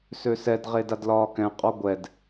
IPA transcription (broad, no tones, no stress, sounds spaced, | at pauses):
s ø s ɛ d ʁ e d a d l ɒː k ɛ̃ qʼ ɔ ɡʷ ɛ d